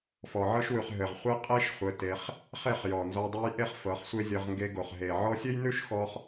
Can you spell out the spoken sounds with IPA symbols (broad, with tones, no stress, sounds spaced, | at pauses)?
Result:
f ɔ˨ ʕ ɤ˦ ʃ w ʉ˨ χ ɦ ɘ˨ ʁ χʷ e˦ qʼ e˦ ʃ χʷ ɘ˧ t e˧ χ | χ e˦˨ χ j ɔ˨ n z ɔ˧ dˤ ʉ˧ j ʔ e˦ χ f ɤ˨˦ χ sʷ e˦ zʲ ɤ˧ ʁ ŋ ɡ e˧ ɡ o˨ χ ɦ e˨ ʕ ɔ˧ sʲ ɘ˦ j n ʉ˦ ʃ x ɔ˦ χ